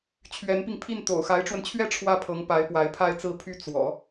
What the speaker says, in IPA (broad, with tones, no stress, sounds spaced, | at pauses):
t͡ɕʰ ɥ ɛ˧˥ n p i˧ ŋ pʰ i˥˩ n t̪ o̰˨˩ ʊ̯ x a˧˥ ɪ̯ ʈ͡ʂ w ə˧ n t͡ɕʰ ɥ ɛ˥ ʈ͡ʂʰ w ä˥˩ pʰ ɤ˧˥ ŋ p a˧˥ ɪ̯ p w a˧˥ ɪ̯ pʰ a˥˧ ɪ̯ t͡s ɹ̩˥˧ pʰ y˥˩ t͡s w ɔ̰˨˩˦